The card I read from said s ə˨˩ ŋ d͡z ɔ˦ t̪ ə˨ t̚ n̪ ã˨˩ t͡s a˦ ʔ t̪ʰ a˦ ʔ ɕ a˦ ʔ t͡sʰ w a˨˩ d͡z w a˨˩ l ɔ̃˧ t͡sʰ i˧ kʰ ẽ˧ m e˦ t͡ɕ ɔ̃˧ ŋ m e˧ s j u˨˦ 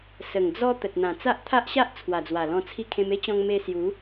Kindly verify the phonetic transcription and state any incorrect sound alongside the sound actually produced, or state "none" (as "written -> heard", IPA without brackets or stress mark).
none